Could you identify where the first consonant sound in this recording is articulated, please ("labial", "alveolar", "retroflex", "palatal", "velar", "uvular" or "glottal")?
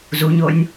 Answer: alveolar